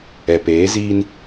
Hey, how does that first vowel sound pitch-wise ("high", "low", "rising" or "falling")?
low